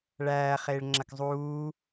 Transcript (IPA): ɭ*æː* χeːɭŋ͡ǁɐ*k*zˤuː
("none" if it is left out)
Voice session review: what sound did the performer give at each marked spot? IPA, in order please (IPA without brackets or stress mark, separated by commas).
æː, k